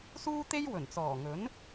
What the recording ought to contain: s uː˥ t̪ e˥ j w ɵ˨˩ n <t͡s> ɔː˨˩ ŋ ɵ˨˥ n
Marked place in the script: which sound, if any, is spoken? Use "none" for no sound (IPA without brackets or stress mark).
t͡s